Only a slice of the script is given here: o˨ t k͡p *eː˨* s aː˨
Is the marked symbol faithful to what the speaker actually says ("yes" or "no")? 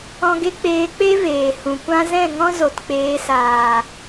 no